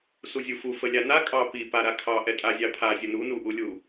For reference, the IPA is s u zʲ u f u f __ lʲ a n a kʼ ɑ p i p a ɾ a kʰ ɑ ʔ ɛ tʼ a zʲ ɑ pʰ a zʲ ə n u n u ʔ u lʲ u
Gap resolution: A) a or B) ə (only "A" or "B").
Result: B